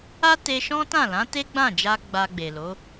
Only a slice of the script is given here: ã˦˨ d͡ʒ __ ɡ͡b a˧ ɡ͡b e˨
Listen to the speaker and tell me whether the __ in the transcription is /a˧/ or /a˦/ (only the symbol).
a˧